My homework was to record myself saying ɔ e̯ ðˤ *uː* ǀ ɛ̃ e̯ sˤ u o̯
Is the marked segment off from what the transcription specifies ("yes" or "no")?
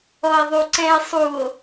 yes